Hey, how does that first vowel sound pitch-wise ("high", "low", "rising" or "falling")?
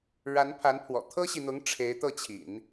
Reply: rising